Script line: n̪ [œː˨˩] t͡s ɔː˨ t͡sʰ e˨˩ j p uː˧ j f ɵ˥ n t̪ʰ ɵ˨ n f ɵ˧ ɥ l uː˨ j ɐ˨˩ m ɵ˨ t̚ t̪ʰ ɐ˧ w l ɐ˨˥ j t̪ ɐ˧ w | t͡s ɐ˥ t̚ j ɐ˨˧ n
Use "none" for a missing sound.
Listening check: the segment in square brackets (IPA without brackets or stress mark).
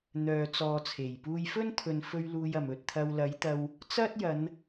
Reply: œː˨